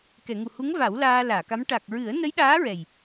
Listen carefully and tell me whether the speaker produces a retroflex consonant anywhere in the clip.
yes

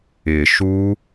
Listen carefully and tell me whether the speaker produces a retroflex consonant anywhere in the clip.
no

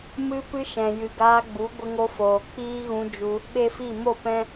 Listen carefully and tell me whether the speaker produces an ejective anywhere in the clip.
no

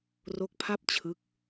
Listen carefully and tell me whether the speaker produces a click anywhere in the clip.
no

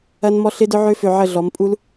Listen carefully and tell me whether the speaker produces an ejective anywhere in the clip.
yes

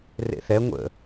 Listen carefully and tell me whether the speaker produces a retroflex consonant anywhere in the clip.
no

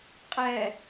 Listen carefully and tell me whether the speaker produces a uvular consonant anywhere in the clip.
yes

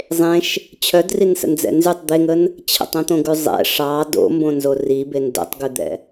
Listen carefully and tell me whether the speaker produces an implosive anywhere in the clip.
no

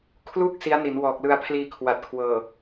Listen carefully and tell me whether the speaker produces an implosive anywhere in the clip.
no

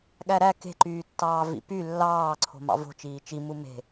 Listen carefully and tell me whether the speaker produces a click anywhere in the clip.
yes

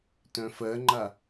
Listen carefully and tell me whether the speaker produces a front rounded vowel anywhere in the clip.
yes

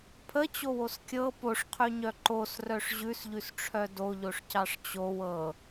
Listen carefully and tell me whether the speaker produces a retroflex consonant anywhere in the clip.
yes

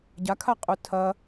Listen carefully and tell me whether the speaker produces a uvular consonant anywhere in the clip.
yes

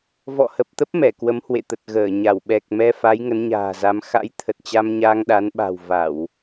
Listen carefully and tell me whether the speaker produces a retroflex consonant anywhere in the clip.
no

